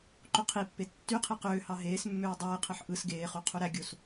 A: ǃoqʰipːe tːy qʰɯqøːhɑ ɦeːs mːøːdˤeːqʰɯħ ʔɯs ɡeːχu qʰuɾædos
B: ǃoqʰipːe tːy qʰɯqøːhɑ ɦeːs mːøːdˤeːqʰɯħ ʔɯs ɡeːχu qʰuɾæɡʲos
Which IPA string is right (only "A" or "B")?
B